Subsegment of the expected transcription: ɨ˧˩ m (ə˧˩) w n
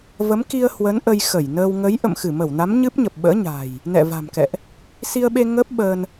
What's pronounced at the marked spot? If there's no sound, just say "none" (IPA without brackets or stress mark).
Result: ə˧˩